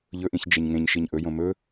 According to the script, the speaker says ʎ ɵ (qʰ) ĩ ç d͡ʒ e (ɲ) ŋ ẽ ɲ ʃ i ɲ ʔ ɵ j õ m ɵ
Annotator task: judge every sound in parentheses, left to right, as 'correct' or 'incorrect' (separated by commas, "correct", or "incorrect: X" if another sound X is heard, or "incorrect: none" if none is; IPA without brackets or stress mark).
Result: incorrect: ʔ, correct